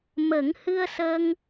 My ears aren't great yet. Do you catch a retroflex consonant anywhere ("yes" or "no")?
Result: no